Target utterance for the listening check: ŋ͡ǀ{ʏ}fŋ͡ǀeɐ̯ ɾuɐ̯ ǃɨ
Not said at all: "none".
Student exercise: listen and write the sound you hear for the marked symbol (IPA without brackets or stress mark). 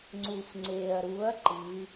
u